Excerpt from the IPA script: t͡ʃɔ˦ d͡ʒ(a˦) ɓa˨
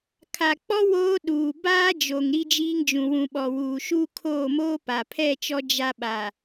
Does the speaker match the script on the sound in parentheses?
yes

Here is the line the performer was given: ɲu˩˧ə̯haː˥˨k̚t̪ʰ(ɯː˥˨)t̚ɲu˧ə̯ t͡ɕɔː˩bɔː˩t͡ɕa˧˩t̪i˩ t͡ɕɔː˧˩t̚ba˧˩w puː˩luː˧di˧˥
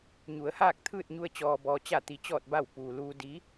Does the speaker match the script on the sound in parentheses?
yes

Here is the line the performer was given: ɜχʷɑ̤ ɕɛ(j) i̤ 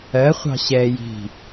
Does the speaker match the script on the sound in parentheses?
yes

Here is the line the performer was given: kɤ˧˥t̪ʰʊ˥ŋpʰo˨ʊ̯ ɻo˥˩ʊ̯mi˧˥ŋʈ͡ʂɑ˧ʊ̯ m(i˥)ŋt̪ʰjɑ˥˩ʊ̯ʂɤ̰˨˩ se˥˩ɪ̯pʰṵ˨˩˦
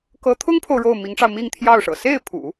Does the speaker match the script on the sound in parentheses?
no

